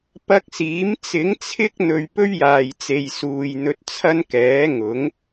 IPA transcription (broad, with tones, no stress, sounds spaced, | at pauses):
p ɐ˧ k̚ s iː˨˥ m t͡s ɪ˨˥ ŋ t͡sʰ ɪ˥ k̚ n̪ ɵ˨ ɥ p ɵ˥ ɥ j aː˨ j t͡s e˨ j s uː˨ j n̪ ɵ˧ t̚ t͡sʰ ɐ˥ n k ɛː˨˥ ŋ ʊ˨˥ ŋ